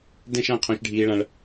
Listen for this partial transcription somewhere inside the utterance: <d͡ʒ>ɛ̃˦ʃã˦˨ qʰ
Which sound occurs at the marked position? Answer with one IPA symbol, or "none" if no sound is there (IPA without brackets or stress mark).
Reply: d